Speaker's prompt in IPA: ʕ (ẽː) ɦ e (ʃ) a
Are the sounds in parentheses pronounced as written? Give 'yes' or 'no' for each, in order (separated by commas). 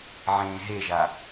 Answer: yes, no